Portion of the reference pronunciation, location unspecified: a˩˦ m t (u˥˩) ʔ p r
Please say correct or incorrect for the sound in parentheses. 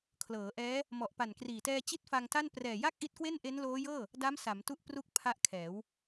incorrect